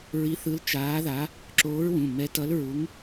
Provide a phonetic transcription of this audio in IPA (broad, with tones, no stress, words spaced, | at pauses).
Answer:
ɹi˧˥θɯ˧˥l t͡ʃaː˧˥ða˧˥ | ǁoː˧˥ɹwũ˩˧˩ mɛ˧˥tʌ˧˥lɹu˧˥ŋ